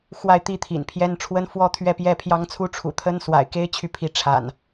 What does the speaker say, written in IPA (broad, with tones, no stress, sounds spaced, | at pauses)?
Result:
x w a˥˨ ɪ̯ t̪ i˥˨ t̪ʰ ḭ˨˩ n pʰ j ɛ˦ n ʈ͡ʂʰ w ə˦ n f w ɔ˦ t̪ʰ ɥ ɛ˥˨ p j ɛ˥˨ pʰ j ɑ˦ ŋ t͡sʰ u˦ ʈ͡ʂʰ ṵ˨˩ t̪ʰ ə˦ n s w a̰˨˩ ɪ̯ k e˦ ɪ̯ t͡ɕʰ y˨ pʰ i˨˦ ʈ͡ʂʰ a̰˨˩ n